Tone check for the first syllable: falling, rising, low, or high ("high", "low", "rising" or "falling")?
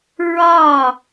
falling